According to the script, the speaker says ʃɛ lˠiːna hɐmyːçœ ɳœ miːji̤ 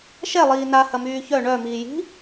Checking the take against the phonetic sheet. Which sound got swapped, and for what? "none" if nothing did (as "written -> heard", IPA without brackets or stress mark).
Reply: none